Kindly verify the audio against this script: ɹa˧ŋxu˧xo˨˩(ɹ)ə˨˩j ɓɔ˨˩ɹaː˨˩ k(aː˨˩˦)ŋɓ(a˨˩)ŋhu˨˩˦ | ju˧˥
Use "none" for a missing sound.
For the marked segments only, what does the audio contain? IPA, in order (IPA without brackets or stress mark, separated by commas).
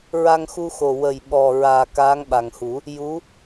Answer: w, aː˧˥, a˨˩